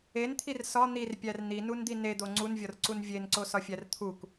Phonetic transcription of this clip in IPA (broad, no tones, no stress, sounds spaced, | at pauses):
e n t̪ʰ i r s ɒ n̪ i r pʲ æ r n̪ i n u n d̪ i n e d̪ o ŋ͡ǀ u n vʲ ɒ r ǀ u n vʲ e n ǀ o s ɒ fʲ æ r t̪ʰ u k